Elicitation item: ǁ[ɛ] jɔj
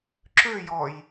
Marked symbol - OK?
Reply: no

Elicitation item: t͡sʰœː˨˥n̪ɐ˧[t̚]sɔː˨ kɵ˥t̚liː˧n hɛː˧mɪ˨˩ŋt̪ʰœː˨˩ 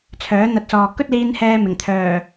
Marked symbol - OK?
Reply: yes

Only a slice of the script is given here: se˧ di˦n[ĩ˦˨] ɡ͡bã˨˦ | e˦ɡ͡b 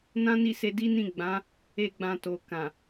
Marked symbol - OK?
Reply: yes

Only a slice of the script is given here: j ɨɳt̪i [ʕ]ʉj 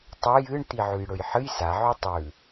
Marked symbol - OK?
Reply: yes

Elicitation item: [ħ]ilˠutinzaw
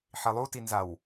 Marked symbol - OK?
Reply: yes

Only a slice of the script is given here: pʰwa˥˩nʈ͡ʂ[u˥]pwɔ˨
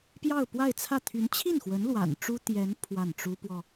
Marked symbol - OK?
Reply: yes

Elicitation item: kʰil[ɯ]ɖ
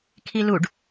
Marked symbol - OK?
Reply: no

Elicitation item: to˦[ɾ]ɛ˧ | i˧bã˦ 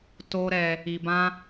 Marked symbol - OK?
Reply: yes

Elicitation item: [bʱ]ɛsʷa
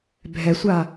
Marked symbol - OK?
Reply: yes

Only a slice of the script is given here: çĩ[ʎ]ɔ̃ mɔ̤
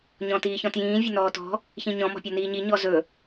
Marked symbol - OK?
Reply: no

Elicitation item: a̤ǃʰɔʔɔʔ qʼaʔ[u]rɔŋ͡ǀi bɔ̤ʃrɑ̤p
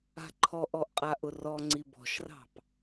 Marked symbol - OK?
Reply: no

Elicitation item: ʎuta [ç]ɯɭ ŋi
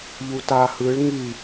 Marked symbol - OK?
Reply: no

